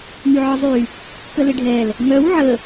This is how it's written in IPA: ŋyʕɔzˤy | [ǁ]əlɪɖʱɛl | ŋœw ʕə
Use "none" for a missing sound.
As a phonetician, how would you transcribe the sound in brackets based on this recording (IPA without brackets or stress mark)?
k